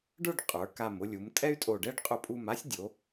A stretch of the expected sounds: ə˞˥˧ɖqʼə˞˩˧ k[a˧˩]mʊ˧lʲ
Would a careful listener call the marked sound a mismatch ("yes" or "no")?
no